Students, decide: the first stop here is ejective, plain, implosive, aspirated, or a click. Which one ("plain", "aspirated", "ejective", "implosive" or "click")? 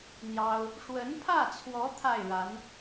aspirated